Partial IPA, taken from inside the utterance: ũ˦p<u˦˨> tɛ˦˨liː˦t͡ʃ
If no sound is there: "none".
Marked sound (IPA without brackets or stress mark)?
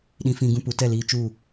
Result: u˨˦